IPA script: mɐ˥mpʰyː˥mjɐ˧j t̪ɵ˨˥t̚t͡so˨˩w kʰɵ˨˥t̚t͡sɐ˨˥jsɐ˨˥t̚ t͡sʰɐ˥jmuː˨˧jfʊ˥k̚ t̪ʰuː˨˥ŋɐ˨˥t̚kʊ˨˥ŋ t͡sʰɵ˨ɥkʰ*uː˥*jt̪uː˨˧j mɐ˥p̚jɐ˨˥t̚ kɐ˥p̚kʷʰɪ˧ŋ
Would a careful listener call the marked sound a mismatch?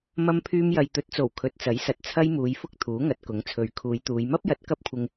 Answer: yes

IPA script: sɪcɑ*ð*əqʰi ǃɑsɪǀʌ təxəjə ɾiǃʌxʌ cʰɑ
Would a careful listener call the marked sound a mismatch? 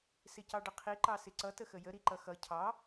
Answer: yes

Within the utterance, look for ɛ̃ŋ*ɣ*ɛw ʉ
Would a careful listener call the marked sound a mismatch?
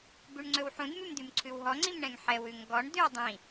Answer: yes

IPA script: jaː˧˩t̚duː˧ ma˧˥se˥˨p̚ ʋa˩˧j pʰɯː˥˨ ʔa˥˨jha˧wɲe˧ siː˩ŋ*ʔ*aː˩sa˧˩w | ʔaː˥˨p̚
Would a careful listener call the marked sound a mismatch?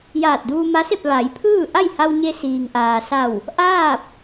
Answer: no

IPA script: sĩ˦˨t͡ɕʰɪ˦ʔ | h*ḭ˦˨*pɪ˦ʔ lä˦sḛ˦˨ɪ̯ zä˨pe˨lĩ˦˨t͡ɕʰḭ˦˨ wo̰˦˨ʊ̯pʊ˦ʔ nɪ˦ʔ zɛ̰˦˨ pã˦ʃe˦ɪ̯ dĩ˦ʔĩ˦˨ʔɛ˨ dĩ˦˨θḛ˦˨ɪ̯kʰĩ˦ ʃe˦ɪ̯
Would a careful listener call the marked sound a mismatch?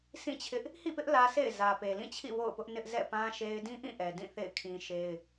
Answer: no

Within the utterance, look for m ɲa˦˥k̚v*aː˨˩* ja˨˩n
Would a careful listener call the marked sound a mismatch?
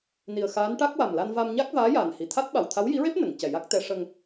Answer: yes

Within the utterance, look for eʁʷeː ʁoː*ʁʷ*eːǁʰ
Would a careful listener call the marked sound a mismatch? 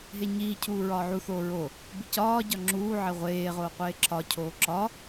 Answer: yes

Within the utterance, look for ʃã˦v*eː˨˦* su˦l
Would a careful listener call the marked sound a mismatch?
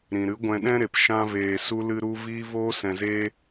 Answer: yes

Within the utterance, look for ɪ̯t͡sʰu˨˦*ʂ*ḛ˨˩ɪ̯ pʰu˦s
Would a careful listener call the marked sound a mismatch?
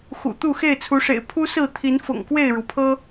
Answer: no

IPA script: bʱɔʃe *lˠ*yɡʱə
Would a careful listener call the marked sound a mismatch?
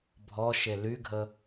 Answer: yes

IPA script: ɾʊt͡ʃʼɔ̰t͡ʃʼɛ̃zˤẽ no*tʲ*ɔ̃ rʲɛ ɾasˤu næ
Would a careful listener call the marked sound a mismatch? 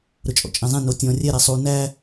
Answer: no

